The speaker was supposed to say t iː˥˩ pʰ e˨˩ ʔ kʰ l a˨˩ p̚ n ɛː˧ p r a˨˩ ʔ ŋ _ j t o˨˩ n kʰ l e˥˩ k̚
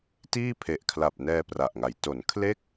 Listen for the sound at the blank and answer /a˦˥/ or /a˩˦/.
a˩˦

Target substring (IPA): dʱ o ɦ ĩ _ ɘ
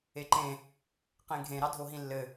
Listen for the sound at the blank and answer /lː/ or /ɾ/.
lː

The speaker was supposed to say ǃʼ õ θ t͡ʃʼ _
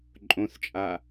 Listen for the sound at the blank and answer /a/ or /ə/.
a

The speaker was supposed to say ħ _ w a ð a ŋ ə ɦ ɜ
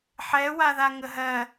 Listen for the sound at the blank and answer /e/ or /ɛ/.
ɛ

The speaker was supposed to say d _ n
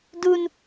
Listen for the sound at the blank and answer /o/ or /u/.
u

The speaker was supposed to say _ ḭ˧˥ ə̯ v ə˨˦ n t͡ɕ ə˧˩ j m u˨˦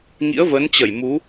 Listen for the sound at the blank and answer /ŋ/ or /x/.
ŋ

